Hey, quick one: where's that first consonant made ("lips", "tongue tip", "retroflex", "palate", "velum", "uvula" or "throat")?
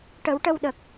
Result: retroflex